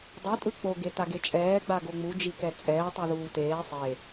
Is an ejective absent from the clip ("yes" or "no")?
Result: no